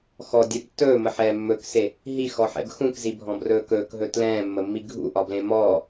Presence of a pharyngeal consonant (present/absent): present